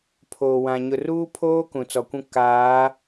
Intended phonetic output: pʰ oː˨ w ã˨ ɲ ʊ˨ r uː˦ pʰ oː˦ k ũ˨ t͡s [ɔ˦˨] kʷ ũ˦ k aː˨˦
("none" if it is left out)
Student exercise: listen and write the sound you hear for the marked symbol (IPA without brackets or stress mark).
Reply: ɔ˨